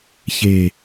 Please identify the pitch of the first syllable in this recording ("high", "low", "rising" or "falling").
low